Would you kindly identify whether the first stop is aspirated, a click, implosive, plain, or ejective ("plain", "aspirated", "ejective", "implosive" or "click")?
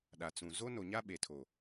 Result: implosive